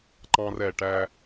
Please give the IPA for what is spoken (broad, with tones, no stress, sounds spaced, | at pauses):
ǃ ɑ̃˦ r ɛ˨ ʈ æ˦